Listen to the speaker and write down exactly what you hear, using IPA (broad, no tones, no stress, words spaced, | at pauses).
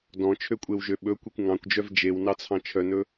dɔ̃t͡ʃʰøkʷʼewʒø ɓɵkʷekʷ ŋɑ̃kʷd͡ʒœv d͡ʒewnɑt͡sʰɑ̃ t͡ʃʰœnɵ